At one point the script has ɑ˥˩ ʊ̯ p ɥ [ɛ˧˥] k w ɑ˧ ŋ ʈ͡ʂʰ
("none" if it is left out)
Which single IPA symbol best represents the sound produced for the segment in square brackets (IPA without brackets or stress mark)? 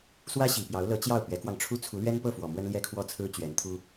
ɛ˧˥